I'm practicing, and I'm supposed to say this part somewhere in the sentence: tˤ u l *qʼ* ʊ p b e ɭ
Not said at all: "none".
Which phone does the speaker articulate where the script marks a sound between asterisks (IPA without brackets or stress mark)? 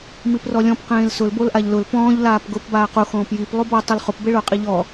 χ